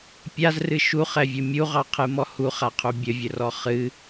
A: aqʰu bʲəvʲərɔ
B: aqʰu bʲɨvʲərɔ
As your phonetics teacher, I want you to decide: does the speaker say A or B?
A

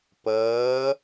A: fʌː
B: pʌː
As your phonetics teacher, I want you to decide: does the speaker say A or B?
B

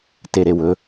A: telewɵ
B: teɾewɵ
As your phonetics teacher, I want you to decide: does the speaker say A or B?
B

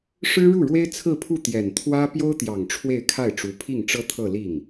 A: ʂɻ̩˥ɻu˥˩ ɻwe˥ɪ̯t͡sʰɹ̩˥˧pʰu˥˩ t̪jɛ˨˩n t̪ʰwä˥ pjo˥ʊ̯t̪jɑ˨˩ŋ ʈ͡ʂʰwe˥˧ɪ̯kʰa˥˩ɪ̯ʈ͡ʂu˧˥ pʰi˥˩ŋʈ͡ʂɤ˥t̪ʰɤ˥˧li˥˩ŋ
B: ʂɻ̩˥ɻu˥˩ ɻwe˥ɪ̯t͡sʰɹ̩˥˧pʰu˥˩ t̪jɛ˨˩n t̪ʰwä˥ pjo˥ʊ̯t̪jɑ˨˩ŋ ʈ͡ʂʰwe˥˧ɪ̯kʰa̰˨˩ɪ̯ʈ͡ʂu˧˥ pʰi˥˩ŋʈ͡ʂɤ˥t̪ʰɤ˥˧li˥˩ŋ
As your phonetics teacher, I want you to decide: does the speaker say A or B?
A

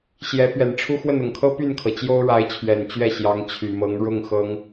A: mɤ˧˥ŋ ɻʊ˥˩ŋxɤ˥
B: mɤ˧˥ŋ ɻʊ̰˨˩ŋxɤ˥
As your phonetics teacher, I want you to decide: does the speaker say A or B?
A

